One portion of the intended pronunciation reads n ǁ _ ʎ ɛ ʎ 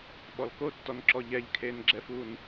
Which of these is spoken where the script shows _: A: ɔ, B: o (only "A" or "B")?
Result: A